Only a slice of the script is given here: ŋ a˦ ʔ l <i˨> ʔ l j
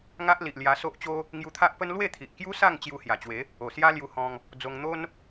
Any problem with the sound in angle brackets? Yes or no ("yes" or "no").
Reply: no